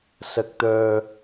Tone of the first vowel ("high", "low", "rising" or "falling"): low